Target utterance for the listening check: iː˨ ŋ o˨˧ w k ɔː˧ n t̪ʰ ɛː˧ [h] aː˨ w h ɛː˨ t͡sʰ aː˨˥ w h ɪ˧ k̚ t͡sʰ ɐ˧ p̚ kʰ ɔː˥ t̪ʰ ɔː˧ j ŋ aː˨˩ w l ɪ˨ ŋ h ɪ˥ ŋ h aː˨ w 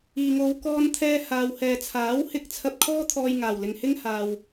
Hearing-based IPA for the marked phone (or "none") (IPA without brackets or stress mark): h